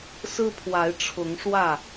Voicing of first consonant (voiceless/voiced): voiceless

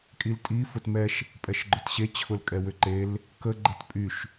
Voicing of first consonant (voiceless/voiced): voiceless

